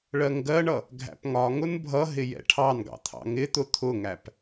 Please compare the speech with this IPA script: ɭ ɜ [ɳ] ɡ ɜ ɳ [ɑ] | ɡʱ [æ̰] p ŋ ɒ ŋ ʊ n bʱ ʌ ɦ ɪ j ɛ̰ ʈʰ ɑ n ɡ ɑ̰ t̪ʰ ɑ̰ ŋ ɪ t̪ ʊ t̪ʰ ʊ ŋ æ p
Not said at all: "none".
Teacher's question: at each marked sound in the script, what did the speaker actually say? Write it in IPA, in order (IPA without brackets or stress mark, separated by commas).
ŋ, ʌ, æ̰